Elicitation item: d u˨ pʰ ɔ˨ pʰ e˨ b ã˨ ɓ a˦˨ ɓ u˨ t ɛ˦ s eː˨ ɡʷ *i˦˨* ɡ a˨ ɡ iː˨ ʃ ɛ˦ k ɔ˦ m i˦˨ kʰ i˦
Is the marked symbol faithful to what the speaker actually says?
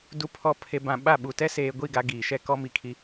yes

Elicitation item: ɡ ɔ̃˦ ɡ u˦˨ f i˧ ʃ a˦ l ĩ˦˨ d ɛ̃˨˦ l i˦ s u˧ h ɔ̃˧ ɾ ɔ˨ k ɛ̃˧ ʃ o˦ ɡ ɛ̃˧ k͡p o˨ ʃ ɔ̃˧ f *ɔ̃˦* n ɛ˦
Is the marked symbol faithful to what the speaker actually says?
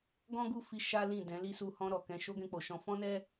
yes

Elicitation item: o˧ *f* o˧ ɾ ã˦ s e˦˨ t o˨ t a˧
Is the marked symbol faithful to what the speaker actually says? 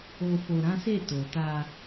yes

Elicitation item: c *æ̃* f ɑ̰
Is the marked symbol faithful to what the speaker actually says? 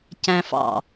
yes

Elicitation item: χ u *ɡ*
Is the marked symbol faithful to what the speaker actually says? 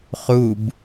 no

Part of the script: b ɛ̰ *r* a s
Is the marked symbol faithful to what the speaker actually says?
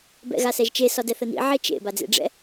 no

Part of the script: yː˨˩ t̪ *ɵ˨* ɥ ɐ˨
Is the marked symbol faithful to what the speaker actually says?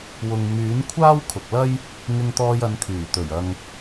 no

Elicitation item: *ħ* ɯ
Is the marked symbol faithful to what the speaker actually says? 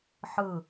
yes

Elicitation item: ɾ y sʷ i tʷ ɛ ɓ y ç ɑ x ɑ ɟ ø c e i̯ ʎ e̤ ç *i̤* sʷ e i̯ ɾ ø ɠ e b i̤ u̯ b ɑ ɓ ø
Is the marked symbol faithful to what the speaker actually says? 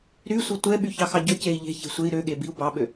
no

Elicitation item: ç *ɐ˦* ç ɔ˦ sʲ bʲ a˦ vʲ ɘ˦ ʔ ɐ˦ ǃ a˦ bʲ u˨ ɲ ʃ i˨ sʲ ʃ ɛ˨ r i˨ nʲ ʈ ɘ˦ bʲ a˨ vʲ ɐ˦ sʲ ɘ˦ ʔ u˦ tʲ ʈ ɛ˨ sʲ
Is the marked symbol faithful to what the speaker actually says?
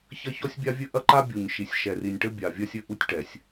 yes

